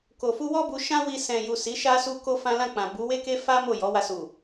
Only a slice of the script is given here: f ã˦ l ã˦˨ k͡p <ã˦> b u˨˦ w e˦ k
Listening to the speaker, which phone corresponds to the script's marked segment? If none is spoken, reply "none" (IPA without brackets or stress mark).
ã˨